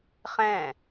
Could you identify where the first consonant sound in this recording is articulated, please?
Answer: uvular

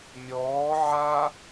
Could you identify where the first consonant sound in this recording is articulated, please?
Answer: labial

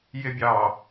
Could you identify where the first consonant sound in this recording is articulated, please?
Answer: palatal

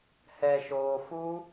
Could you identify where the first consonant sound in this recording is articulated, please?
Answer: glottal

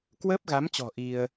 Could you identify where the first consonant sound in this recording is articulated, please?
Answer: velar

